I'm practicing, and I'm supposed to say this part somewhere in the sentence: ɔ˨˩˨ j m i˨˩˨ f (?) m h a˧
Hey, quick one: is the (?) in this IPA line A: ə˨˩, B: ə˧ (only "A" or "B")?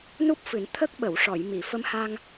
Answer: B